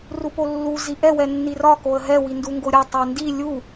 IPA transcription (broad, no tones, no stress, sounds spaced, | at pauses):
r u p o lː u z i ʔ ɛ w ɛ nː i r ɒ k o ə̯ ɦ ɛ w i n d u ŋ ɡ o ɾʲ ɒ tˤ ɛ n d i lʲ u